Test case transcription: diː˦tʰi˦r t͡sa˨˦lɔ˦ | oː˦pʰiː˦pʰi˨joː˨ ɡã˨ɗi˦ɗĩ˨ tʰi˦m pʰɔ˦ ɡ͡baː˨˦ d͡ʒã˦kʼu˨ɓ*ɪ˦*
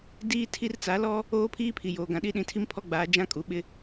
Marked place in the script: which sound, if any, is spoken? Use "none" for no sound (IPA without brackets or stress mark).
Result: ɪ˦